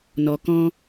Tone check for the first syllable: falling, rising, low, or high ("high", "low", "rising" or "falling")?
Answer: low